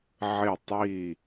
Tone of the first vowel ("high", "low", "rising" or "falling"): falling